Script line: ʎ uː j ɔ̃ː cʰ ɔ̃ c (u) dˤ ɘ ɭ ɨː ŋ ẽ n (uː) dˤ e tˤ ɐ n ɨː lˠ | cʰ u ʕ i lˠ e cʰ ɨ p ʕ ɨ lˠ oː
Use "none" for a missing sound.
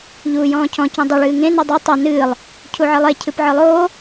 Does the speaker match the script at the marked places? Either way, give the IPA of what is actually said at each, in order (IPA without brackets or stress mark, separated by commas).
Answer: ũ, u